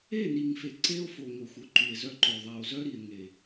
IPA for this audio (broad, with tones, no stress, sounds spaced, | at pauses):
e˦˨ n i˨ ŋ f e˨ ǀ e˦ o̯ f o˨ ŋ o˨ xʷ œ˦ ǃ y˨ e̯ z œ˦ ǃ o˨ ðˤ a˨ o̯ z œ˦ ɾ i˨ e̯ ŋ e˨